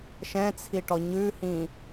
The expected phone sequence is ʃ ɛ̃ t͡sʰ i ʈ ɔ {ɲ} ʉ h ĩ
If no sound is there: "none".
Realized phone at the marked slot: ɲ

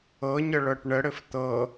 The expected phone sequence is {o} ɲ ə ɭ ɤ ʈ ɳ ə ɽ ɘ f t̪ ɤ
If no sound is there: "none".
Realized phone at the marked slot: ɤ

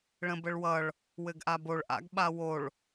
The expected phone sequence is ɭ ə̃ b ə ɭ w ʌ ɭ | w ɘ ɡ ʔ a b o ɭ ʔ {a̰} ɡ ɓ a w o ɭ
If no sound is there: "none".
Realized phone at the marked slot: a̰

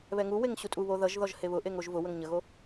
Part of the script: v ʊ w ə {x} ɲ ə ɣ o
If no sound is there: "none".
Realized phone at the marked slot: ŋ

